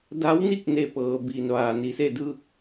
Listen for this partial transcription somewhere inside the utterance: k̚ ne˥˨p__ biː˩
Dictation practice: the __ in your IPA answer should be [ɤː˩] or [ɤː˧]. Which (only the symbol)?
ɤː˧